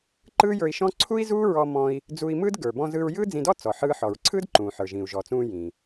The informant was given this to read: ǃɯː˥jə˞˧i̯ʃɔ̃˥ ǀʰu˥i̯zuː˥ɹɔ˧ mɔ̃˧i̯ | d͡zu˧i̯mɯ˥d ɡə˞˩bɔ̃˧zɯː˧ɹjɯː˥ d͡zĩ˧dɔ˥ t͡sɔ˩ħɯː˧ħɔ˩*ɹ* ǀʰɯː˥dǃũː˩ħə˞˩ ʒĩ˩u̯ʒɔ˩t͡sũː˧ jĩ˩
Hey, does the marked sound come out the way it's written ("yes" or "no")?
yes